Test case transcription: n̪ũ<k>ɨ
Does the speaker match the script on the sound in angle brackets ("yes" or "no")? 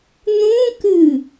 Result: yes